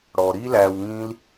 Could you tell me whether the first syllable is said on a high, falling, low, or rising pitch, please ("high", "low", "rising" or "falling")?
low